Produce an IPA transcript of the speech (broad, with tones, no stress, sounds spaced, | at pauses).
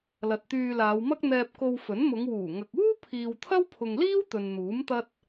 l ɐ˨ t̚ t̪ yː˧ l aː˨˧ w m ɐ˥ k̚ n̪ ɛː˧ p̚ k o˧ w f ɵ˨˥ n m ʊ˨˧ ŋ w uː˨˩ ŋ ɐ˨ k̚ uː˥ pʰ iː˨ w t̪ʰ ɐ˥ w pʰ ʊ˨ ŋ l iː˥ w t̪ ɵ˨ n n̪ uː˨˥ m t̪ ɐ˥ t̚